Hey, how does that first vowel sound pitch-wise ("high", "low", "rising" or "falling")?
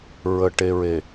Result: low